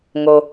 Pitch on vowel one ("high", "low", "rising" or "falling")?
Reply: low